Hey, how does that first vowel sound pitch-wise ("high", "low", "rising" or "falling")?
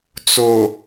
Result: low